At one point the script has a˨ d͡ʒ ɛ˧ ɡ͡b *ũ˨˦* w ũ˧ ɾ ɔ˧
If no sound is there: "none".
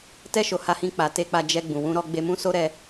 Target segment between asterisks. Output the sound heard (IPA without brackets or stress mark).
ũ˨